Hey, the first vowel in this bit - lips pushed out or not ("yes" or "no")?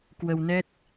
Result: no